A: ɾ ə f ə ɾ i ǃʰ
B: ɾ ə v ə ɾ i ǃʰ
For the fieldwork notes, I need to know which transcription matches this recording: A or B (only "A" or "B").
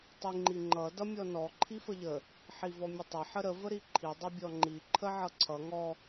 B